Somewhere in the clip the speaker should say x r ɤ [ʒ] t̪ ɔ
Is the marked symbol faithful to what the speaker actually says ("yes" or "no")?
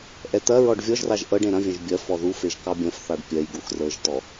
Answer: yes